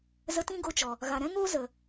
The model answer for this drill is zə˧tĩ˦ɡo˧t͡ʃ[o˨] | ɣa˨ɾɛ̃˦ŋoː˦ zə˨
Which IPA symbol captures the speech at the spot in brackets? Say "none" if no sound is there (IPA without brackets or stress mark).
ɔ˨